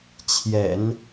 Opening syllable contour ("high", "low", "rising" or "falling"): low